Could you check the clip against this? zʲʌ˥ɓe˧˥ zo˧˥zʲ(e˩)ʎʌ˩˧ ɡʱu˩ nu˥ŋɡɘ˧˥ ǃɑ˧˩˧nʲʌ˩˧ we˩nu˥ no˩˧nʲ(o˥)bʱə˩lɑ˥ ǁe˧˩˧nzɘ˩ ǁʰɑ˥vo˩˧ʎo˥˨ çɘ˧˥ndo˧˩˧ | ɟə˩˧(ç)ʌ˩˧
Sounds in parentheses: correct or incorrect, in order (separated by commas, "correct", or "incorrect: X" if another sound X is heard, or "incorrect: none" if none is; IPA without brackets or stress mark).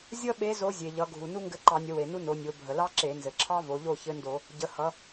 correct, incorrect: o˩˧, incorrect: h